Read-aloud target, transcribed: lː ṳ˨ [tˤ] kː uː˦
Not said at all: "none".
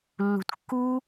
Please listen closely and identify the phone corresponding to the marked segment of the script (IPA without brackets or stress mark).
t